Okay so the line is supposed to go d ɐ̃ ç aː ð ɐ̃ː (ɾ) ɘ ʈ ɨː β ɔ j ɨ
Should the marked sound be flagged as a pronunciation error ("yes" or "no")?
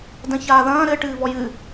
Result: no